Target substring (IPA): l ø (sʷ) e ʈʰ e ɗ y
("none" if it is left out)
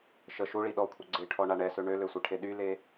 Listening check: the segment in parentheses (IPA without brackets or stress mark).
sʷ